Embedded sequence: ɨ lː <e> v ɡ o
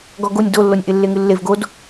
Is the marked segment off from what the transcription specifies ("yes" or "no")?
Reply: no